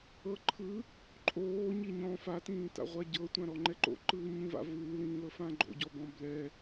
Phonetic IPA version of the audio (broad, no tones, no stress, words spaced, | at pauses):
ɤ ǃʰɯ | ǃʼoː ɲiɲɔ̃ fatĩːta̰ʁʷa ɟɤtʷã ɾɔŋ͡ǃɛǃo̰ ǃɯːɲĩva̰ vɯːlĩːlɤ fãɡ͡ǃo̰ɟɔbɔ̃ blɛ